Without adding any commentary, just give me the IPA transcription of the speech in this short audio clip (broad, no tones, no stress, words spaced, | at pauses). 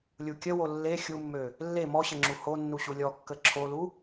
lʲukʲəwo lːe xʲumːø | lːe mɔɕə ŋ͡ǁuhonːu ɕulʲɔkːə ǁʰolu